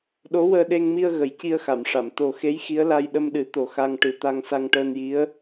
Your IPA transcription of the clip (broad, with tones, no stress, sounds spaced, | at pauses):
ɗ o˧˥ w əː˧ ɗ e˧ ŋ m i˧ ə̯ ɣ ə˨˩˦ j c i˧ ə̯ x a˨˩˨ m ʂ a˨˩˨ m t̪ o˨˩ x e˧˥ j x i˧˥ ə̯ l a˧ j ɗ ə˧ m ɗ ɨ˨˩˦ t̪ o˨˩ x a˧ ŋ ʈ ɨ˨˩ t̪ a˧ ŋ s a˧ ŋ ʈ əː˧ n j i˧˥ ə̯